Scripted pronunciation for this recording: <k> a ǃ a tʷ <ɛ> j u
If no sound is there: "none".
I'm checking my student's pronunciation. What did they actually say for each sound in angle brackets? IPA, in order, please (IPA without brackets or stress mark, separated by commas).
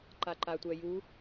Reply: ǃ, ɛ